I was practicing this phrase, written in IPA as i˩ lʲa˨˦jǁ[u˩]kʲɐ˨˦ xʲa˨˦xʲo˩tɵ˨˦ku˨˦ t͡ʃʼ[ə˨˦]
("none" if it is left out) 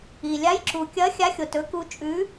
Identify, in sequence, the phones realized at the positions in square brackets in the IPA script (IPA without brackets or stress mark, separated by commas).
u˩, ʉ˨˦